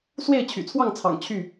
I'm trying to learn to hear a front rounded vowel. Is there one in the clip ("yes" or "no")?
yes